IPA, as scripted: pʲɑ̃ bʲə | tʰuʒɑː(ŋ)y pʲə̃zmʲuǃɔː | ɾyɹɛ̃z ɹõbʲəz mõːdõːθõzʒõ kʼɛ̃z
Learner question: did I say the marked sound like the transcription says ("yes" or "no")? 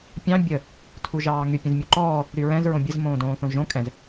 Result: yes